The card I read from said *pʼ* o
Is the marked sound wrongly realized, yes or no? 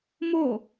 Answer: yes